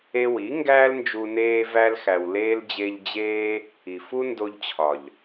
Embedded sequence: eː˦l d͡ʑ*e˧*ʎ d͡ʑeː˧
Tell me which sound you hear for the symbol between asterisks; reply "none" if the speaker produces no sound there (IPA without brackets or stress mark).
e˧